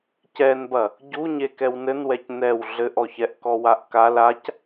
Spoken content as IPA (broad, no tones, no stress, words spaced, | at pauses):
cɛnbɐ | ɟuɲe kɛwnɘnwɛc nɛw ɮɘʔɔçɛʔkɔ waʔkal ac